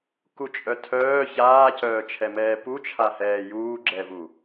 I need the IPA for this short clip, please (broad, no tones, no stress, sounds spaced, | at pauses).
k u t͡ʃʼ œ tʰ œː ç aː c œː t͡ʃʰ ɛ m ɛː p u t͡ʃʰ a h ɛː j uː ɡ͡ǁ ɛ v u